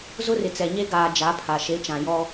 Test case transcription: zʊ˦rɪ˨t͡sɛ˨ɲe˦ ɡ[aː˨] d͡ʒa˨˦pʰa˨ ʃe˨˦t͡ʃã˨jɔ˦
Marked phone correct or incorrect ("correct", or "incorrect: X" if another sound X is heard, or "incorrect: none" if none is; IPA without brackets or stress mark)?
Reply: correct